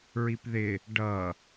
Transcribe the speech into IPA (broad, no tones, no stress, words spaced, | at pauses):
ɹipðɪ | ɖʌ